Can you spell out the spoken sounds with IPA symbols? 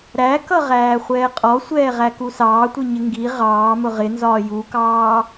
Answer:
ɾækʌʁæː χʷɛːqʼɔsʷɛːʁæ kusɑːtʷiɲɪ ŋɡi ʁɑː mʊʁɪnzɒː jukɑː

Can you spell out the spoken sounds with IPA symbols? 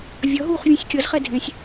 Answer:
vʲʌɦuːχ vʲũsʲkʲʌzχɛ dʱẽsʲ

